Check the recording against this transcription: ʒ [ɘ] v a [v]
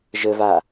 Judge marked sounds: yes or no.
yes, no

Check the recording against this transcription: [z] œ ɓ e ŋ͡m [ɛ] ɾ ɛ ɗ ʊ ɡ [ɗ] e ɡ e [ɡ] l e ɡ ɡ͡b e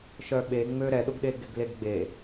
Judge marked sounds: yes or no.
no, no, yes, yes

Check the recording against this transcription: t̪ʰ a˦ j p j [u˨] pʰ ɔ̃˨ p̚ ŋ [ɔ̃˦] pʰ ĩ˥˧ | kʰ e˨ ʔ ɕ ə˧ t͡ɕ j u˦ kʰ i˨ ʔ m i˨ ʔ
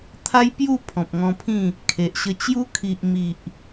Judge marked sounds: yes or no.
no, no

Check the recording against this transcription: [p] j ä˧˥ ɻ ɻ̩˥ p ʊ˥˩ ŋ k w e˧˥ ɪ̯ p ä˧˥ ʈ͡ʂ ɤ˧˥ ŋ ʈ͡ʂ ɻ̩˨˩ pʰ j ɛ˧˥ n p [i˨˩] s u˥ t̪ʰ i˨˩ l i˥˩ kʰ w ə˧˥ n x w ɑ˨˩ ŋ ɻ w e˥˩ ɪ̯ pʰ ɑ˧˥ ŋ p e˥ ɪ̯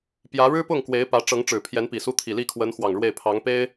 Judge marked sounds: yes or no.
yes, yes

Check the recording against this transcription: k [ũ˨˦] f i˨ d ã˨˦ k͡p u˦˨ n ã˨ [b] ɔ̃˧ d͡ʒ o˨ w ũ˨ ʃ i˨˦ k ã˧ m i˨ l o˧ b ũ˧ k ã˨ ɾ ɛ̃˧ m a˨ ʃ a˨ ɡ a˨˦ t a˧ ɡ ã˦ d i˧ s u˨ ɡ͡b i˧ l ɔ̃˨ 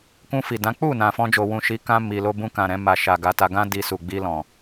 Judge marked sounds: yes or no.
no, no

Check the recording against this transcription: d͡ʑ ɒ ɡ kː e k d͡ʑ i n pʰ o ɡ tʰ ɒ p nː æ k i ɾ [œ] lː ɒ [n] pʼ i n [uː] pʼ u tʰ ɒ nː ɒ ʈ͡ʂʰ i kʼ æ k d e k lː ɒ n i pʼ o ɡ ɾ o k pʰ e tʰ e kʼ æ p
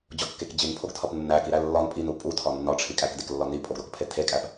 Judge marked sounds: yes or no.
no, yes, no

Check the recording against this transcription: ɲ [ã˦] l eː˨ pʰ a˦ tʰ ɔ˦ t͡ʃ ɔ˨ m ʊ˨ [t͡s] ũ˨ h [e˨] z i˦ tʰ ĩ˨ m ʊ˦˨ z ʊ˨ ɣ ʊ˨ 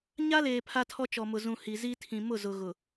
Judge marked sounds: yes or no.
no, no, no

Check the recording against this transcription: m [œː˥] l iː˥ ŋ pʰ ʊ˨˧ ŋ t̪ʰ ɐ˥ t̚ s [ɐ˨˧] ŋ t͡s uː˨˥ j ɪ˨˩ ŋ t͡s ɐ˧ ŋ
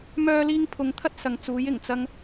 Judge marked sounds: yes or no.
yes, yes

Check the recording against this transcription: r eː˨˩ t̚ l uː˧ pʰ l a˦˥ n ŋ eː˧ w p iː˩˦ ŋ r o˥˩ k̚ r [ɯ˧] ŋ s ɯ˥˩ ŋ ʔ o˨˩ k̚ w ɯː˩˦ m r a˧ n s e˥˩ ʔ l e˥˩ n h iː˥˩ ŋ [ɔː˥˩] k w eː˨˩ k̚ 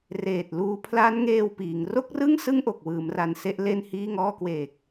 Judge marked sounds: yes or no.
no, yes

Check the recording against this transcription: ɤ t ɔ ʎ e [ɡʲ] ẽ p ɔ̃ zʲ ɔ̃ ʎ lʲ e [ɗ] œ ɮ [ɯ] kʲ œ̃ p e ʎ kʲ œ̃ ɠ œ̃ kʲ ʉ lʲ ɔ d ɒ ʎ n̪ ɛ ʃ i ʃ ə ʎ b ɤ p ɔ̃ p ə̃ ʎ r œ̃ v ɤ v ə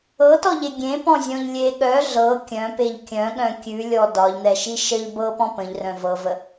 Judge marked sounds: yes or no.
yes, no, no

